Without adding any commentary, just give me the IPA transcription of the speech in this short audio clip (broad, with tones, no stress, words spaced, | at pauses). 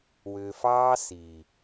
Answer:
wʏː˨fɑː˦ si˨